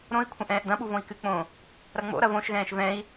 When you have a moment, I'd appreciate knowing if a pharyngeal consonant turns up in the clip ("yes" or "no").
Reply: no